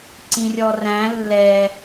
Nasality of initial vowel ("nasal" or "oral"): nasal